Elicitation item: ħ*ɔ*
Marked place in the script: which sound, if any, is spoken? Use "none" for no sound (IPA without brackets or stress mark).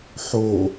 o